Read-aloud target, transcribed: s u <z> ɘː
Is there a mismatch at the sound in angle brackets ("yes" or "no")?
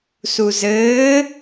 no